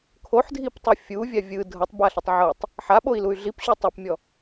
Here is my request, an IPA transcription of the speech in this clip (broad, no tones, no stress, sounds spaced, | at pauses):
kʰ o ħ dʱ i p tˤ ɯ fʲ u vʲ a vʲ ɯ dʱ ɤ tˤ b a ɬ ɯ tˤ ʕ ɤ tˤ | ħ a ɓ o i̯ l u y̯ ɮ i p ɕ u tˤ a p mʲ ɔ